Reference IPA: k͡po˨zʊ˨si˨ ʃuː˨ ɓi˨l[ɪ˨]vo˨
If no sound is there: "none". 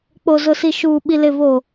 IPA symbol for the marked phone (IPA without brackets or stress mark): ɪ˨